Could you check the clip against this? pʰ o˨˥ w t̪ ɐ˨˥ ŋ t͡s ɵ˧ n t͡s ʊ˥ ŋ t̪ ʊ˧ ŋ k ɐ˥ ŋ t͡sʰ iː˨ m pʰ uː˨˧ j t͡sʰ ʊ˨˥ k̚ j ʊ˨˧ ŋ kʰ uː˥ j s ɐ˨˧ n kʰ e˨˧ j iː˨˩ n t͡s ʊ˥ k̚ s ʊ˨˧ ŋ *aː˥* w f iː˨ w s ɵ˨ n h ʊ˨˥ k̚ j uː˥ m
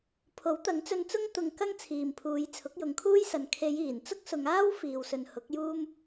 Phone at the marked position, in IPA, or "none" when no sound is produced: aː˥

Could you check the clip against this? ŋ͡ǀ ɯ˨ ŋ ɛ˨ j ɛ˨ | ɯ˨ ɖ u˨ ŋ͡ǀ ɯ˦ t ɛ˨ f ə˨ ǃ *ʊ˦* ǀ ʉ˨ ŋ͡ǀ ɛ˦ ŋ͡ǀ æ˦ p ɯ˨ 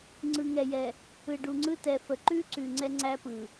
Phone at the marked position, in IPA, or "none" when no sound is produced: ʉ˦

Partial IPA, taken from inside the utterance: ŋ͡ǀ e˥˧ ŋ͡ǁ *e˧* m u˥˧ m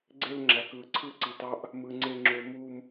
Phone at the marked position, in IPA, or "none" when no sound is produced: ø˧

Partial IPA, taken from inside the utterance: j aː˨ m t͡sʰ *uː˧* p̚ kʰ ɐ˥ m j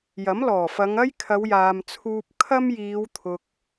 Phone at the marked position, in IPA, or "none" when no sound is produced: uː˧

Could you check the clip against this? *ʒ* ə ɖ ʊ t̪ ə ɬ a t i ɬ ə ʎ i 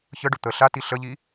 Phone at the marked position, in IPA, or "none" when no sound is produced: ç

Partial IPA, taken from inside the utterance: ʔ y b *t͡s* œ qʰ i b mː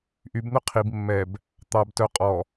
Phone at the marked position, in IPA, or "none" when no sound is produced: n̪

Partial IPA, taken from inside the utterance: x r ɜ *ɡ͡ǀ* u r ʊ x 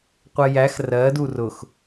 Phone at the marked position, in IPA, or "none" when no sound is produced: d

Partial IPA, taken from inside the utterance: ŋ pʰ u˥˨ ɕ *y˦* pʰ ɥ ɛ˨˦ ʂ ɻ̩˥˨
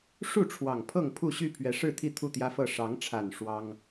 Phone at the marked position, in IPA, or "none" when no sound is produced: y˥˨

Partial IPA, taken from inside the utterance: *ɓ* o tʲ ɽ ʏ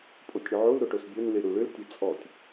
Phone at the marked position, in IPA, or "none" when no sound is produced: pʼ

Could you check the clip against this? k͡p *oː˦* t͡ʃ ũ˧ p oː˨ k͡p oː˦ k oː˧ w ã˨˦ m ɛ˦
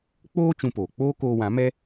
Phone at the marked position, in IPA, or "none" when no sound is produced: oː˦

